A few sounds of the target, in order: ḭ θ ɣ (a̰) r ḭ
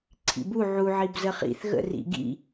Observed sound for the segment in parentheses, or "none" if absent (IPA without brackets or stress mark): ə̰